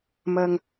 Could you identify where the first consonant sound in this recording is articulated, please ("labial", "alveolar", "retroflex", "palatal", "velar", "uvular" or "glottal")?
labial